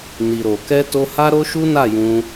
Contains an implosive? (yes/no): no